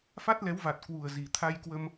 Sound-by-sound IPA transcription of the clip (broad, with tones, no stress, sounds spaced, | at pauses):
f a˦˥ t̚ l ɛ˨˦ w v a˨˩ t̚ k w u˨˩ ə̯ z i˨˩ t̪ʰ a˧ j k w ə˧ m